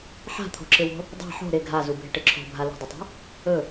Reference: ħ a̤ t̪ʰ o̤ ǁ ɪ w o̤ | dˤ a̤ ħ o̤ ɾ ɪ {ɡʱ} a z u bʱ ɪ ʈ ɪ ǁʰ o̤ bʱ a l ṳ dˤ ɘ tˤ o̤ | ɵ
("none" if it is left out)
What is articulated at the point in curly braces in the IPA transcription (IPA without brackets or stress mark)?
ɡʱ